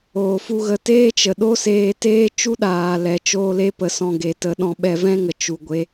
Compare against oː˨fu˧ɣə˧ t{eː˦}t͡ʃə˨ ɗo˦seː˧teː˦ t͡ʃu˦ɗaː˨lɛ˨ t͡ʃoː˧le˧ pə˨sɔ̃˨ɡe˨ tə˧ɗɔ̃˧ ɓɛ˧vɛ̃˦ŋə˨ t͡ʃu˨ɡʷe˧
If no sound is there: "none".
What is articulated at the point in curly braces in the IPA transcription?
eː˦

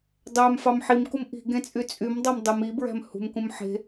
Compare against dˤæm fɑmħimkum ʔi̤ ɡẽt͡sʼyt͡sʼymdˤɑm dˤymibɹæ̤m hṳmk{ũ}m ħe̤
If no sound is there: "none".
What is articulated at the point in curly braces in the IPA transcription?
ũ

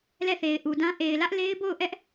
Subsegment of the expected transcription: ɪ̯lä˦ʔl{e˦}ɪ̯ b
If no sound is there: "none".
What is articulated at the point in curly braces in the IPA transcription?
e˦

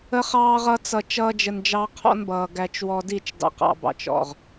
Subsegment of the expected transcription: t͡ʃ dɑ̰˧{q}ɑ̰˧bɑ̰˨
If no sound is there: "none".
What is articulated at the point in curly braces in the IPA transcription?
q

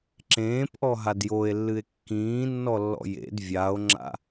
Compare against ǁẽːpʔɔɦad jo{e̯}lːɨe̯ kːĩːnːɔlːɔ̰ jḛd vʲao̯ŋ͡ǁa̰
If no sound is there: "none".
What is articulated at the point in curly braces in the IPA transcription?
e̯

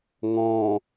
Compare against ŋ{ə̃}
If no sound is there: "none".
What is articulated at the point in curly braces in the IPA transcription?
ɔ̃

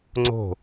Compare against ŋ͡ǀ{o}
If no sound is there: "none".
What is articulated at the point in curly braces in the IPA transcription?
o̤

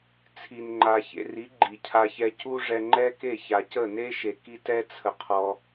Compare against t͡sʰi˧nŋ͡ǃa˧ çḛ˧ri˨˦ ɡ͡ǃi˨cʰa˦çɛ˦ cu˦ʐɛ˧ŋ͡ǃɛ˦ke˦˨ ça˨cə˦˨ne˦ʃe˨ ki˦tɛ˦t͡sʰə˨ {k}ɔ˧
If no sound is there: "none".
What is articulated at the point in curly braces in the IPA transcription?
qʰ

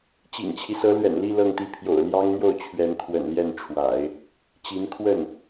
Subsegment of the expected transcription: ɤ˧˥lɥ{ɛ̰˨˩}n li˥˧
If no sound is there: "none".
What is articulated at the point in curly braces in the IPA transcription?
ɛ̰˨˩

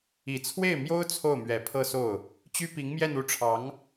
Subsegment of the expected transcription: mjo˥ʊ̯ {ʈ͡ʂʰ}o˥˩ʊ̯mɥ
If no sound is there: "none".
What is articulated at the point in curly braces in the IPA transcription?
t͡sʰ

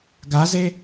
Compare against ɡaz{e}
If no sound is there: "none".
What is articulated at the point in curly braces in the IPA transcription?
e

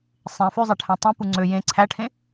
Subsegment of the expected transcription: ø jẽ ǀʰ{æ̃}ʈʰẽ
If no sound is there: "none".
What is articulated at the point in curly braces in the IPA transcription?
æ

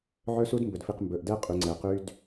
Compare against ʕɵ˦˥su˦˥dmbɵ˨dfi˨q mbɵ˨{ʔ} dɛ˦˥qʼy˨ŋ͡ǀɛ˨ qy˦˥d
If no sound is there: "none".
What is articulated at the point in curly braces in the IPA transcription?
ʔ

